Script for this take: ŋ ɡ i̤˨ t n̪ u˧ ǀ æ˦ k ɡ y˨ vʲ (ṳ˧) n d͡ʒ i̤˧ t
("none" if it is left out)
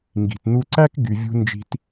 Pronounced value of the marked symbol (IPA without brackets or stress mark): ṳ˧